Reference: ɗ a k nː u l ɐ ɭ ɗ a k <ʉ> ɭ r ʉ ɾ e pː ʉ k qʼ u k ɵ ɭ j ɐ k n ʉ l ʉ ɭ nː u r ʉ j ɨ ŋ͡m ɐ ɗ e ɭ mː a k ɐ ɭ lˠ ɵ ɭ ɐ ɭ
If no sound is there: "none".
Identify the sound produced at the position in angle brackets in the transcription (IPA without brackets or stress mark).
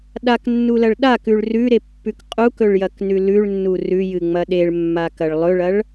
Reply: ʉ